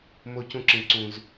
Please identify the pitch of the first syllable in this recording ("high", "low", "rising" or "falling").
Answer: high